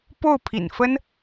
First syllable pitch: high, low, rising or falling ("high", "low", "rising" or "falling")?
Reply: falling